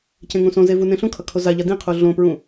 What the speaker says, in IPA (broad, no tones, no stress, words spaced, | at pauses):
cẽŋũsõze vunẽɬũkʰʌ kʰozaʎa dĩqʰu ɮõpɹũ